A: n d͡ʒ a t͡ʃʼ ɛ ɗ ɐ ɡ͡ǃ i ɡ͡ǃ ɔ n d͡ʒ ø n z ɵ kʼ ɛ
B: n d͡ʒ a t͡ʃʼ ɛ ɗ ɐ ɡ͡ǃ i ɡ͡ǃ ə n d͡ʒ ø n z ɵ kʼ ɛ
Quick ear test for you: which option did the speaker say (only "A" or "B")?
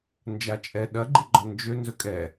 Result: A